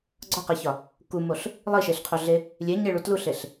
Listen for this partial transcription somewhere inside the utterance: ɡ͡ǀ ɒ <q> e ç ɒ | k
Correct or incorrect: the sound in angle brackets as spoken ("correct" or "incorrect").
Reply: correct